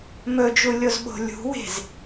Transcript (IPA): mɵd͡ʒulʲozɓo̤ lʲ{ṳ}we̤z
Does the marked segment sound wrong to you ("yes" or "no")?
no